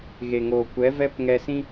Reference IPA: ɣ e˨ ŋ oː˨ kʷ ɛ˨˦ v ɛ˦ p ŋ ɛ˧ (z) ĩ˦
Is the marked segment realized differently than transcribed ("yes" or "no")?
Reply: yes